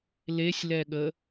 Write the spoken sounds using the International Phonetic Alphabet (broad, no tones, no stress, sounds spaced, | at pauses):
l e sʲ l ɛ ɠ ə